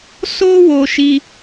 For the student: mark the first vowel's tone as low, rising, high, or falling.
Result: high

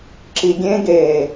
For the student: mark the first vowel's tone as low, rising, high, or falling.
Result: low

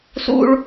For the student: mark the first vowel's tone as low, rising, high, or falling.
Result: high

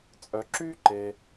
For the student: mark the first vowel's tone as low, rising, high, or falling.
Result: low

